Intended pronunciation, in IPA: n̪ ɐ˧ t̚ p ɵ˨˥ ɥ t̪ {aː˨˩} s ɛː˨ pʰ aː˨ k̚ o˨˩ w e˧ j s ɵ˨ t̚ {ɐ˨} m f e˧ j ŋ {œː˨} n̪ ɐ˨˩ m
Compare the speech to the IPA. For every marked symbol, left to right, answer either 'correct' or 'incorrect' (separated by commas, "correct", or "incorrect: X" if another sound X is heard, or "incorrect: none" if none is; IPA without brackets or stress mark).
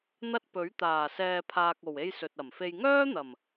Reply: correct, incorrect: ɐ˨˩, incorrect: œː˥